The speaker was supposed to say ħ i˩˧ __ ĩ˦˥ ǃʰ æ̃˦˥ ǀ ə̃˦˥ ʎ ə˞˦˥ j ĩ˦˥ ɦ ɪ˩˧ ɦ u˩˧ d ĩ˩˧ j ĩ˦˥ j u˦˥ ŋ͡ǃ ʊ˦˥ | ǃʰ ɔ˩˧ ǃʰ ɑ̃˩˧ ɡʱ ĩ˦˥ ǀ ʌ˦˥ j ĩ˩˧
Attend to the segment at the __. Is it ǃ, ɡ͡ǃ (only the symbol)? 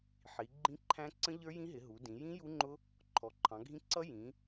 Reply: ɡ͡ǃ